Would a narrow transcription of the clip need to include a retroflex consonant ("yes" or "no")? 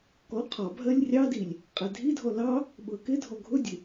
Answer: no